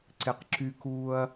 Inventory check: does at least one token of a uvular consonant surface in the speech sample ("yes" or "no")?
yes